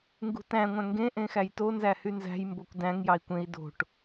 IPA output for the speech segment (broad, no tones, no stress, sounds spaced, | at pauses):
ŋ ɡ ṳ t æ̃ ŋʷ æ̃ ŋ ɡ ẽ ʔ ẽ x æ j t o n z æ h y n z æ̤ j m b o kʷ d æ̃ ŋ j ɑ i̯ kʷ ẽ i̯ d o̤ ʈ